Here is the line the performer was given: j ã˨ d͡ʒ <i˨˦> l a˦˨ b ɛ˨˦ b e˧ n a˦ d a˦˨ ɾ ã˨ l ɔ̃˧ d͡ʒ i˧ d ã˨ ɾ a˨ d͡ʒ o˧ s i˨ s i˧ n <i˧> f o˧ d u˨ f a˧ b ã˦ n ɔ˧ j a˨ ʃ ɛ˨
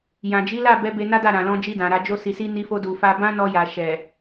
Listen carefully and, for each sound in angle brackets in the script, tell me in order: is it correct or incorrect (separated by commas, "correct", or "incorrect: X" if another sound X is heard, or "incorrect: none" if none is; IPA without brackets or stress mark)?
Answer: correct, correct